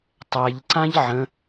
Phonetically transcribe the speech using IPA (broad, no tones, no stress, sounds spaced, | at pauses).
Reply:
tˤ æ ʎ ǀ ã ʎ ʕ ə̃